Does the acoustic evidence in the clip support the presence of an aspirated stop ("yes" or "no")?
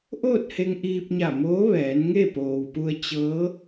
no